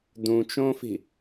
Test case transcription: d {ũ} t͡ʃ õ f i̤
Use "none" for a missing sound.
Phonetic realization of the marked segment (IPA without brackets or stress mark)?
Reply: ũ